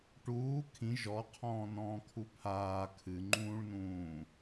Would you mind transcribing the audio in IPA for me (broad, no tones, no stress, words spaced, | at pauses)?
ʈuː kʰĩ ʒɔqʰɔ̃ː nɔ̃ːkʰupʰaː kʰɨŋ͡ǃũːɭnũː